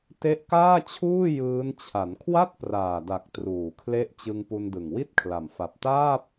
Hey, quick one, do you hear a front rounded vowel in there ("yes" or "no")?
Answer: no